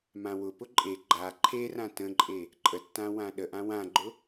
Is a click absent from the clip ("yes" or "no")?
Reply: no